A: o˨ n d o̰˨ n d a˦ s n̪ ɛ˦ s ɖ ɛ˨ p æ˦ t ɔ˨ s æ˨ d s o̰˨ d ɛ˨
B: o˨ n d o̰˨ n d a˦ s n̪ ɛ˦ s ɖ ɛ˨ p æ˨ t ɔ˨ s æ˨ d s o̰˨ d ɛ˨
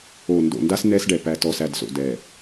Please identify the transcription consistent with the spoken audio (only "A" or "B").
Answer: B